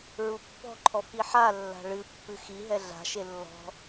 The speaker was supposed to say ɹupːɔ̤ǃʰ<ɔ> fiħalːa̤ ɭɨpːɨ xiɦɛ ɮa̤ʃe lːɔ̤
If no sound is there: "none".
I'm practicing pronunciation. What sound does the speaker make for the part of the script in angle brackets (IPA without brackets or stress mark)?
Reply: ɔ